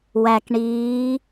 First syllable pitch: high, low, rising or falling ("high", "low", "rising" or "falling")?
low